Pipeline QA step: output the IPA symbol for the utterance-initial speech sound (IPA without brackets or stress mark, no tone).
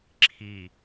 ǁʰ